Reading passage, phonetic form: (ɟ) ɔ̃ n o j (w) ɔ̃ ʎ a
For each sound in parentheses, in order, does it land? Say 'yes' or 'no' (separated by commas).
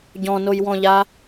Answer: yes, yes